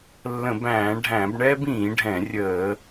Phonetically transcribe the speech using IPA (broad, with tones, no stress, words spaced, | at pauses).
lːə̃˧˩˧bæ̃ː˧˩˧ɖʱæ̃˧˩˧bɳɛː˥b ĩː˧˩˧ɖʱɛ̃˧˩˧ rʲəː˧˩˧